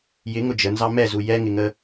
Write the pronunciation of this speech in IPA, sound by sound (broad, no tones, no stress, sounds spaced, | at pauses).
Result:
j ɪ ŋ ʊ d͡ʒ ə n z ɑ m ɛ z u j ɛ ŋ ɪ ŋ ə